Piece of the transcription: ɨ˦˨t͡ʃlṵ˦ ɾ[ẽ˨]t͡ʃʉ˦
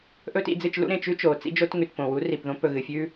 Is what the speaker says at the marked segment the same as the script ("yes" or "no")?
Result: yes